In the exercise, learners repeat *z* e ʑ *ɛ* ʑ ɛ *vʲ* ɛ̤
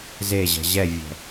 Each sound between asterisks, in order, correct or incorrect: correct, incorrect: ɛ̤, correct

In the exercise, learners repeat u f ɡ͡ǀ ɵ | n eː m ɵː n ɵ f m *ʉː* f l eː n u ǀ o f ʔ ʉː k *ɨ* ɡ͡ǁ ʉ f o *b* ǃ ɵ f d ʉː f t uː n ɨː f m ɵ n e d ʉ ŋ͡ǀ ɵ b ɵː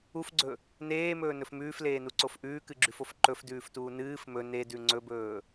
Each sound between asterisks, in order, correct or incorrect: correct, correct, incorrect: f

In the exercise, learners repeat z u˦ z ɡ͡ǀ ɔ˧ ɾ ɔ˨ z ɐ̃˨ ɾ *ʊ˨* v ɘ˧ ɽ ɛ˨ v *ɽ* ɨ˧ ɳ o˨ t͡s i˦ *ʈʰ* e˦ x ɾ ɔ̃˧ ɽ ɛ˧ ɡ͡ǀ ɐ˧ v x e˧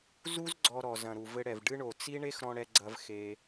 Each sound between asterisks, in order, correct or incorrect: incorrect: u˨, incorrect: ɖ, incorrect: ɳ

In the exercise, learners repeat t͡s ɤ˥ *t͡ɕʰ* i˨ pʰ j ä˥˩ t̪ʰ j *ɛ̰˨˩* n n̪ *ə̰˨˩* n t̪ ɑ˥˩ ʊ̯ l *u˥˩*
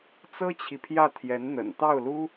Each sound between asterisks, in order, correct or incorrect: correct, incorrect: ɛ˧˥, correct, incorrect: u˥

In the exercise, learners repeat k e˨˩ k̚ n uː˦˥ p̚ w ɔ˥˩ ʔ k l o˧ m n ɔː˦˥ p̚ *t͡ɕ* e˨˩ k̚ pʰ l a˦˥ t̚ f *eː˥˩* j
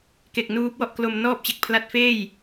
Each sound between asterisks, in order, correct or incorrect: correct, correct

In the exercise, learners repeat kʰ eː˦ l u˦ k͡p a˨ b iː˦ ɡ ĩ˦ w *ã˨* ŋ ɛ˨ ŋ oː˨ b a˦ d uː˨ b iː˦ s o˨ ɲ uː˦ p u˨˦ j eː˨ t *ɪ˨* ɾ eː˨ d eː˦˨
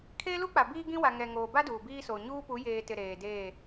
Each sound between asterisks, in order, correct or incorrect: incorrect: a˨, correct

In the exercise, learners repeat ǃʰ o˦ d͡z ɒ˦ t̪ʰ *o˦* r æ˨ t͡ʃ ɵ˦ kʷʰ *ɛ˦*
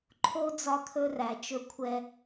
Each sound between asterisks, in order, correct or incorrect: incorrect: ɵ˦, correct

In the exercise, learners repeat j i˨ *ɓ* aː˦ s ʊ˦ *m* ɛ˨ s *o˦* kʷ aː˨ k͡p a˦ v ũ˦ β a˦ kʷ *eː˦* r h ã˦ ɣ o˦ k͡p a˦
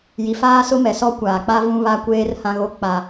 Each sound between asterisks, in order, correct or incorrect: incorrect: f, correct, incorrect: ɔ˦, correct

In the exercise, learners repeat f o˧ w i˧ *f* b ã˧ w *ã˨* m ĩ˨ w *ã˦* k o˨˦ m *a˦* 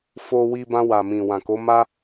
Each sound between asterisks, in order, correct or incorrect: incorrect: none, incorrect: a˨, incorrect: ã˨, correct

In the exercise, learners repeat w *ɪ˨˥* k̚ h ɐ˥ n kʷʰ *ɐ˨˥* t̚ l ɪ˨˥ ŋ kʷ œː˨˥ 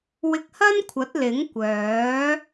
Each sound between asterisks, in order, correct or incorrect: incorrect: ɪ˧, correct

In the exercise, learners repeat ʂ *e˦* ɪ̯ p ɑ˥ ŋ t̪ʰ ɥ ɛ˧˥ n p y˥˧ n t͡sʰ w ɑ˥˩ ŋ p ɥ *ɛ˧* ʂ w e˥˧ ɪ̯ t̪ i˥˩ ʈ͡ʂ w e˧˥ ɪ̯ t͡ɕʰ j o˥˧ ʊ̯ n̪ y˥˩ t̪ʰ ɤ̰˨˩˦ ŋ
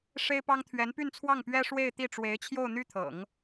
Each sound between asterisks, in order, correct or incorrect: incorrect: e˥, incorrect: ɛ˥

